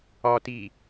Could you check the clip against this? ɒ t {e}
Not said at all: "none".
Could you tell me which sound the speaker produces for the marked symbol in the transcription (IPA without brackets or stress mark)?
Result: i